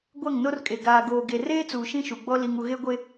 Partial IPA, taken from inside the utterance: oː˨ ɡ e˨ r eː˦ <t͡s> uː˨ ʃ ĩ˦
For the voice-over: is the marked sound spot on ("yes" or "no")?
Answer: yes